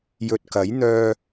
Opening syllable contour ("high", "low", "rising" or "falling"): low